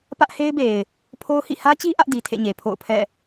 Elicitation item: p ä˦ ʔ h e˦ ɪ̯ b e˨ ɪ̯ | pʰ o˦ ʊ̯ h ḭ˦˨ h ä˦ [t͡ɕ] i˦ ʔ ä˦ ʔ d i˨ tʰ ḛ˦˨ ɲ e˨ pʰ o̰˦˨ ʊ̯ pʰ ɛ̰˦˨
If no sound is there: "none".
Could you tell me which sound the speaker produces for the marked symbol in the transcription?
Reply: t͡ɕ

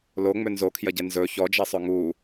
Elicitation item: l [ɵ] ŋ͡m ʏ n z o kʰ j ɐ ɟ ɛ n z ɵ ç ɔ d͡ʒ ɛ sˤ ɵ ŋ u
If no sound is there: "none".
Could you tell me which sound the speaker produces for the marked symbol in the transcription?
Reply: o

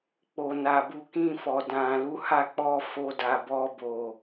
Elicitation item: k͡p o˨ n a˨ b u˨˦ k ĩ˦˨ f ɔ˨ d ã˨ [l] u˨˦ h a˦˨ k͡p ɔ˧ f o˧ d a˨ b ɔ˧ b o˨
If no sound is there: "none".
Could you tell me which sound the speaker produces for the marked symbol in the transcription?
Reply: l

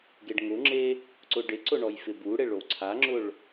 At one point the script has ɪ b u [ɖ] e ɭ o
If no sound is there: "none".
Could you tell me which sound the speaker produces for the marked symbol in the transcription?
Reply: ɽ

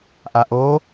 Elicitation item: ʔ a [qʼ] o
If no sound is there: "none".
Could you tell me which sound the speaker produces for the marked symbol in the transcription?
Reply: ʔ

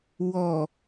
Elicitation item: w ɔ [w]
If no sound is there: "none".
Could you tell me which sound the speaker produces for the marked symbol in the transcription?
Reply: none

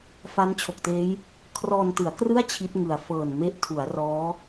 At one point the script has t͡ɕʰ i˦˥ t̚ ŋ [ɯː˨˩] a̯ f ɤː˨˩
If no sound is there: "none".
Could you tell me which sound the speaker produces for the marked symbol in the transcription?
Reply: ɯ˨˩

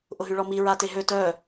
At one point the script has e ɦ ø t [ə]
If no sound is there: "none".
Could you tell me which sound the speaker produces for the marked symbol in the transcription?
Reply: œ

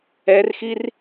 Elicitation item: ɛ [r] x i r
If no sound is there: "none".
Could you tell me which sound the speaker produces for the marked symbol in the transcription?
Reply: r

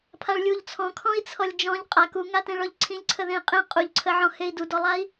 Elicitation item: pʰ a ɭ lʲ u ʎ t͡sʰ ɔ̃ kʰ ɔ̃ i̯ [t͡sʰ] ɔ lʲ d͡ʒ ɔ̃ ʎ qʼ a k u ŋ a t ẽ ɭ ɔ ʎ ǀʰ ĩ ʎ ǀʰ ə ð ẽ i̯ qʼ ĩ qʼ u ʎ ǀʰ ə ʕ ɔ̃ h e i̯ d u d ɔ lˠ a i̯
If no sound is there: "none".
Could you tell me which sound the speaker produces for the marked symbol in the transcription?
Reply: t͡sʰ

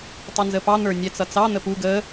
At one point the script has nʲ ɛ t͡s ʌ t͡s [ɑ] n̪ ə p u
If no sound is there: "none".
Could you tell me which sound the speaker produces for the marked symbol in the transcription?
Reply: ɑ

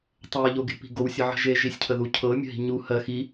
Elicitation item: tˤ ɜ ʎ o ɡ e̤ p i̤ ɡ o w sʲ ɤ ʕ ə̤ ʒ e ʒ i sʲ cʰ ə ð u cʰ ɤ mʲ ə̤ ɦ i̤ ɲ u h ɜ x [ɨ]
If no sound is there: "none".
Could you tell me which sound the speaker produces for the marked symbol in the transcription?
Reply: i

